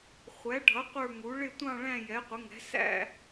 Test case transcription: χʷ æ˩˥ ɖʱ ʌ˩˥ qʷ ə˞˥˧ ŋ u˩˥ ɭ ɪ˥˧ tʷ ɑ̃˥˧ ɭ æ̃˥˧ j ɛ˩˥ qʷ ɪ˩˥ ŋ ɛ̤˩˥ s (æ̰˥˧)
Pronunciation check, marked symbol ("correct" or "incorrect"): correct